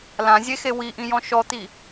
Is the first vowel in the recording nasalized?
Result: yes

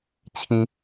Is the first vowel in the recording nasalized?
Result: yes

